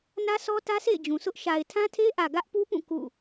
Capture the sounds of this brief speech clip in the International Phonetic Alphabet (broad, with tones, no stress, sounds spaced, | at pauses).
n ä˦ s ɔ˦ t ä˦ s ḛ˦˨ ɪ̯ d͡ʑ ũ˨ s ʊ˦ ʔ ʃ a˨ ɪ̯ tʰ ã˦ tʰ e˦ ʔ ä˨ ɡ ä˦ ʔ p u˦ p ũ˦˨ k ṵ˦˨